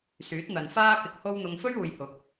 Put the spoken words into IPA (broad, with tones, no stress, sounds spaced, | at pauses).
s yː˨˥ t̚ n̪ ɐ˨ n f aː˥ k ɪ˧ k̚ h o˥ w n̪ ʊ˧ ŋ f ɵ˥ ɥ uː˨ j h ʊ˨˥ k̚